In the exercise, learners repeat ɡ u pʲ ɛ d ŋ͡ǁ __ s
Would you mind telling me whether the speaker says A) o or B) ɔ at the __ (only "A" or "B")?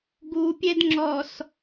B